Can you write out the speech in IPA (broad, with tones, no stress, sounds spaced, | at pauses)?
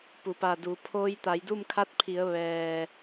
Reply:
p u˩ p a˧˩ d u˩˧ pʰ oː˧ j t̪ a˩˧ j d u˥˨ m kʰ a˧˥ t̚ pʰ i˩˧ ə̯ ʋ ɛː˩